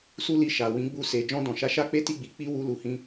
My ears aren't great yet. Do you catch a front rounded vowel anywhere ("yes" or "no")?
no